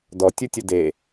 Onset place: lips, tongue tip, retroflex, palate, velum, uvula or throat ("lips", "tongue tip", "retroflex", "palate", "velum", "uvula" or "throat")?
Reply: tongue tip